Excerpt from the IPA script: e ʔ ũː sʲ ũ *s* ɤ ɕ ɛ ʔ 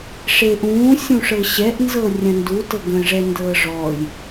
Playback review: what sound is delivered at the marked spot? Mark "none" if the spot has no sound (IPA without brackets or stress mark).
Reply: ʂ